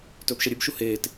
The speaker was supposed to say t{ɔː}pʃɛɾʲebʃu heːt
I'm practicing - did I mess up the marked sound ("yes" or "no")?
yes